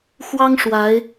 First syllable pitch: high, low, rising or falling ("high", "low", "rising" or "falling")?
high